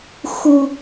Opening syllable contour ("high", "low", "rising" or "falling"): low